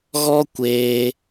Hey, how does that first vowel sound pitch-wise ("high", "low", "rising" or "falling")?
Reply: high